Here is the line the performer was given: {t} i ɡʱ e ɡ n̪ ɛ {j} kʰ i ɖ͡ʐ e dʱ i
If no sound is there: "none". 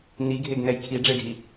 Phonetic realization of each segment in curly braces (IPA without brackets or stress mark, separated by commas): n̪, j